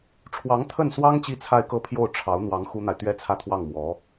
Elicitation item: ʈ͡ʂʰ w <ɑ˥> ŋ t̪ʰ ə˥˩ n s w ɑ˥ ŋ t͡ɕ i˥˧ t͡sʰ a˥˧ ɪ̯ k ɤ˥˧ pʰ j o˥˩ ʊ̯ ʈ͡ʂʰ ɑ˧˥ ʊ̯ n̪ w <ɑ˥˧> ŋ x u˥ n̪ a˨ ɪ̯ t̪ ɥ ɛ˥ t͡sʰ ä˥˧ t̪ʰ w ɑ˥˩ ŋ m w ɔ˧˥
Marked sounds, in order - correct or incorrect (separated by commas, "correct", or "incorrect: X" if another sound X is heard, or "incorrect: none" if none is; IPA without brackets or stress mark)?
incorrect: ɑ˧˥, incorrect: ɑ˧˥